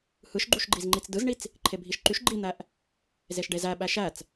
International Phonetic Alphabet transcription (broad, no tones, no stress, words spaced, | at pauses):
hɯʃɡ͡ǃuʃɡ͡ǃizŋ͡ǃit͡s dɯzɳit͡s | ǃʰebʱiʃǃyʃ ɡ͡ǃin̪æʔ | zeʃɖezæɓæ ʃæt͡s